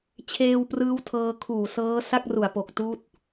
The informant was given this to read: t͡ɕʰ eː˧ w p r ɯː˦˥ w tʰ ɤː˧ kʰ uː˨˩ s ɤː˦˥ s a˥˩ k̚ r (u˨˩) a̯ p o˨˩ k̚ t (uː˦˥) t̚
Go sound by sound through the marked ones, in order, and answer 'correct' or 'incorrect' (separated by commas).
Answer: correct, correct